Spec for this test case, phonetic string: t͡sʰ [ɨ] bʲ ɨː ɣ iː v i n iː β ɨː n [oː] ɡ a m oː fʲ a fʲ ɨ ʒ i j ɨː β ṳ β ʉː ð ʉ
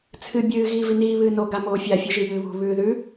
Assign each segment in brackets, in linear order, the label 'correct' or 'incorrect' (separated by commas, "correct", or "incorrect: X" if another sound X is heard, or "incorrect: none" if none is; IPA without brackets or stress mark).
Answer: correct, incorrect: o